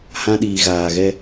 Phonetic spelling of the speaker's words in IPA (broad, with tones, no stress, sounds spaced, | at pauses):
h ã˦ ɗ iː˨ ɣ aː˨ ɣ ɛ˦